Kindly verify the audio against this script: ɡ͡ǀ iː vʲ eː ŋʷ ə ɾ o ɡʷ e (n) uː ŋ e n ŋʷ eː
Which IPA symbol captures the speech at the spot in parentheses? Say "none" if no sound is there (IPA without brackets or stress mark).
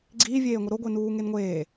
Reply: n